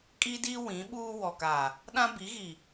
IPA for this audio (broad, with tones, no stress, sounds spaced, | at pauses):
kʼ i˦ d i˦ w ĩ˨˦ ɓ uː˦ w ɔ˨ k aː˨ | ɗ ã˦ b i˨˦ ɣ i˨